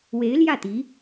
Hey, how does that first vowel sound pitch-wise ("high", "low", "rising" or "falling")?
rising